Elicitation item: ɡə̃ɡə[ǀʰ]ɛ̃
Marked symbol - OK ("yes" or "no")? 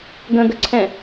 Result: yes